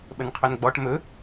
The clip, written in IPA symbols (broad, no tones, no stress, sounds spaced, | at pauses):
ɓ ə n qʰ ɵ n ɡ͡b ɔ ʈ m ɵ